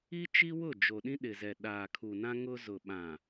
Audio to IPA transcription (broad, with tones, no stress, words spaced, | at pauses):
i˦t͡ʃi˦wʊ˦˨ d͡ʒo˨ɗĩ˦ ɗɪ˨zɛ˨ ɗaː˨kʰu˨nã˦ ŋʊ˦ zʊ˨ɓã˨